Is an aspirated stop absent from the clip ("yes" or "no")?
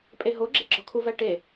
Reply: no